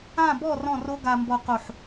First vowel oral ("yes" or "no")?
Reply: no